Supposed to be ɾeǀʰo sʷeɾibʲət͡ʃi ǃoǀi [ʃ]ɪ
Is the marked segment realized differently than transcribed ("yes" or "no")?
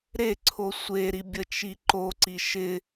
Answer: no